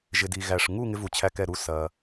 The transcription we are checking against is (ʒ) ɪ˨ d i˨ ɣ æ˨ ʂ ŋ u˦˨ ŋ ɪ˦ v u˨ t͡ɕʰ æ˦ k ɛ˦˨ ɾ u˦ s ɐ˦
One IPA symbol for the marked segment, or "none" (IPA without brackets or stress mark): ʒ